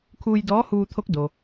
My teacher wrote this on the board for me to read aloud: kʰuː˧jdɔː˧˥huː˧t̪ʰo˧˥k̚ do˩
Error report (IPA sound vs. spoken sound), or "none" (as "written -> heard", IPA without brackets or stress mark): none